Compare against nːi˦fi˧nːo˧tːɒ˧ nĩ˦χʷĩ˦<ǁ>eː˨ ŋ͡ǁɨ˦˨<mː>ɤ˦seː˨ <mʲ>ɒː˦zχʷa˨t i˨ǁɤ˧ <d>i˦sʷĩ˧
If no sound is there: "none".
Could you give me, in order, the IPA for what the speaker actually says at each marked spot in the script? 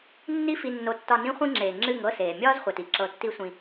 ŋ͡ǁ, ŋ, mʲ, tː

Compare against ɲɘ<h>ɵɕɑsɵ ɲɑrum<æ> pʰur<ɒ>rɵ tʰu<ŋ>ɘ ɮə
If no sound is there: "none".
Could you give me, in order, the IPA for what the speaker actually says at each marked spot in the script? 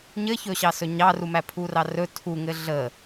ç, æ, ɑ, ŋ

